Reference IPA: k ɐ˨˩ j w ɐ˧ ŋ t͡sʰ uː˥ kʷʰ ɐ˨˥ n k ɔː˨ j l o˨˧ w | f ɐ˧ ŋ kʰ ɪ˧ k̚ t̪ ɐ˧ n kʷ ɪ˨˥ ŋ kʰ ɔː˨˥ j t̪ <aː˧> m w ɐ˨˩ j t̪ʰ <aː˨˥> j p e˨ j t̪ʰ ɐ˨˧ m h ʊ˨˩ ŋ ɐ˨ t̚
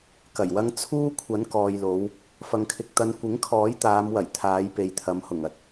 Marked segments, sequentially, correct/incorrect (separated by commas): incorrect, incorrect